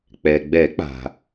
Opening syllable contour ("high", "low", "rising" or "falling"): low